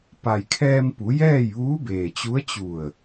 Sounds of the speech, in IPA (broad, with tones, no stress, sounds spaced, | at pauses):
p a˩ j kʰ ɛː˧ m p u˩˧ j ɛː˥˨ j ʋ uː˧˥ b eː˩ t͡ɕ u˧˥ ə̯ t͡ɕ u˧˩ ə̯